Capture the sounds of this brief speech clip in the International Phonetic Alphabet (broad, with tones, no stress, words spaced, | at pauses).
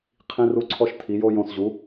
qʰĩ˥ru˥ǀʰɔ˥ʃ tʰi˧˥jo˥ jõ˥˧sʑu˧˥